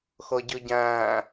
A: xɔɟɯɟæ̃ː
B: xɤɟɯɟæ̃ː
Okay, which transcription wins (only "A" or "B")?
B